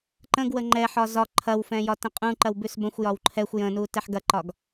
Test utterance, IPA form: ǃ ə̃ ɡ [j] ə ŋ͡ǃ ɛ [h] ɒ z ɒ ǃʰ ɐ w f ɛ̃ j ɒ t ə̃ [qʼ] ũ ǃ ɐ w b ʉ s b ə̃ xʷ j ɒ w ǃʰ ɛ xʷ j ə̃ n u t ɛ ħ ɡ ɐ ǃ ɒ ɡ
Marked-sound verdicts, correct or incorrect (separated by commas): incorrect, incorrect, correct